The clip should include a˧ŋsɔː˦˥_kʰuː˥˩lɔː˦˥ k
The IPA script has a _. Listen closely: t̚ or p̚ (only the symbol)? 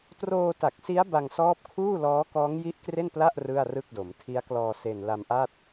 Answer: p̚